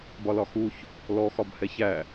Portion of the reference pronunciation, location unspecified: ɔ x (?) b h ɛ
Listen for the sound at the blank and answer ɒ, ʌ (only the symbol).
ɒ